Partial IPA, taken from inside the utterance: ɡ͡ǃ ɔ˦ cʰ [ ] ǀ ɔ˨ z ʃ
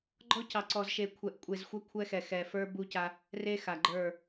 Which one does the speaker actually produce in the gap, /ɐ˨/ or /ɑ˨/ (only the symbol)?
ɑ˨